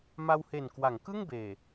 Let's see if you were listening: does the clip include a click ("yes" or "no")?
no